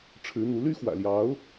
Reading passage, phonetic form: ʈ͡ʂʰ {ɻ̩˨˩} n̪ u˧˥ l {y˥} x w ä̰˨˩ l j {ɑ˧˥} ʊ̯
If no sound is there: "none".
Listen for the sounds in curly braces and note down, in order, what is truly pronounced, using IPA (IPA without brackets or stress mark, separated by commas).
ɻ̩˧˥, y˥, ɑ˧˥